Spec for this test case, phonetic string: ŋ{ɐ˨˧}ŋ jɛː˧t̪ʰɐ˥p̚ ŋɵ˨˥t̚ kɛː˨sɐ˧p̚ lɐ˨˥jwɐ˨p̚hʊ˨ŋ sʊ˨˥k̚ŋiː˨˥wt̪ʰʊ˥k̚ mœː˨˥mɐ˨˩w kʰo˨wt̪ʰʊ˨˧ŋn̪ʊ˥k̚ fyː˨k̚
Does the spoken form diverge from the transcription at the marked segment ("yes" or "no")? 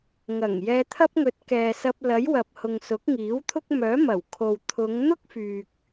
yes